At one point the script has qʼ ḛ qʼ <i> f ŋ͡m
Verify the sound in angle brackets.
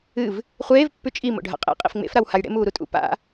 incorrect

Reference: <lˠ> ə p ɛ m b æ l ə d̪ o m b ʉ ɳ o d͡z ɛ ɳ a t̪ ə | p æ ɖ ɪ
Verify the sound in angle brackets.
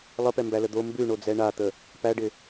correct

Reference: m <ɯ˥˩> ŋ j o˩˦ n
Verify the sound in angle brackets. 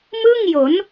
correct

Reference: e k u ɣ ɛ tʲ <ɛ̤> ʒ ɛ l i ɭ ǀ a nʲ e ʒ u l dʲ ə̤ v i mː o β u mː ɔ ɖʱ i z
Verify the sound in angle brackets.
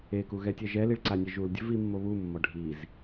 incorrect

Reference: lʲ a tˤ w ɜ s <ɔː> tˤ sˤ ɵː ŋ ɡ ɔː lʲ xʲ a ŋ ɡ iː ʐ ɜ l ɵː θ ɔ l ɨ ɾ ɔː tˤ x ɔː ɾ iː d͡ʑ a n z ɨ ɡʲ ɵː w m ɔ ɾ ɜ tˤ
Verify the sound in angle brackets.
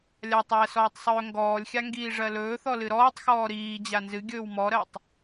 correct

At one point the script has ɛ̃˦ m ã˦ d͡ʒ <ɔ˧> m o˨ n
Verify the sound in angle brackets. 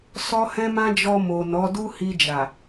correct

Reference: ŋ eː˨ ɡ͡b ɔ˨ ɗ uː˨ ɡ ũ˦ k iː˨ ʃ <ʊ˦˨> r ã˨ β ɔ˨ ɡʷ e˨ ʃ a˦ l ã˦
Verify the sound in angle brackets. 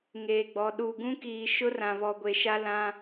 incorrect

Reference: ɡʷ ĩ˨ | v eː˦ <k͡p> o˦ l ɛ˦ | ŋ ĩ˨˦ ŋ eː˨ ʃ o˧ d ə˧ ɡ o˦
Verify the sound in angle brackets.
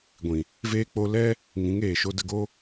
correct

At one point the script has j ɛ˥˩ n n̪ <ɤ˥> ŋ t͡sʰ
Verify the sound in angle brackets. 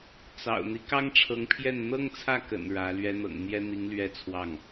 correct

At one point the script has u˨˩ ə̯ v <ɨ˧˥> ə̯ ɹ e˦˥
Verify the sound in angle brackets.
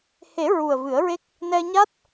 incorrect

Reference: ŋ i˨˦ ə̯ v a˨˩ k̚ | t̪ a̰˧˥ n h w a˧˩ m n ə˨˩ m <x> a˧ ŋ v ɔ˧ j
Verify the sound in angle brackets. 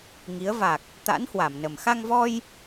correct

